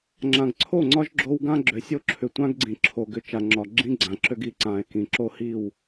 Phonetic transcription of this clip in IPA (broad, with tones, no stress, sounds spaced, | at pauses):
ŋ͡ǁ ã˨ ɡ ǀʰ o˦˨ ŋ͡ǀ ɒ˦ ʒ ɡ͡ǁ o˦ w ɡ ã˦ ɡ͡ǁ ø˨ sʲ o˦ ǁʰ ʏ˨ tʷ ã˦ ɡ ɡ͡ǀ ĩ˨ ǁʰ o˨ ɡ ʏ˨ t͡ʃ a˨ ŋ͡ǁ ɒ˨ ɡ͡ǁ ĩ˦ ɡ͡ǀ ã˨ ǁ ø˦ ɡ i˨ ǀ ãː˨ e̯ k ĩ˨ ǁ o˦ h i˦˨ w